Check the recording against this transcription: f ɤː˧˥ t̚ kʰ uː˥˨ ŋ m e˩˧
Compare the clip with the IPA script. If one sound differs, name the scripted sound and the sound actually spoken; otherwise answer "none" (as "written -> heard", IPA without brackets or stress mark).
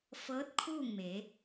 none